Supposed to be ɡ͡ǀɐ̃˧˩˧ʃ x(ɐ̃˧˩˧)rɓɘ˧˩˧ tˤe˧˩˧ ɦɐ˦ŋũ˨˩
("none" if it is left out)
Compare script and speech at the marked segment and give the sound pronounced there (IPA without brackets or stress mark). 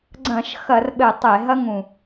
ɐ˧˩˧